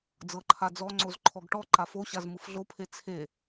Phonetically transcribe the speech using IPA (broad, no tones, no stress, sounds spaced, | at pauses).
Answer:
d͡z ɤ ǃʰ a d͡z ɔ ŋ͡ǀ o z ǃʰ ɔ ɡ ʈ ɔ ǃ a f o ɕ a z m ɯ f ɮ o pʰ e t͡sʰ e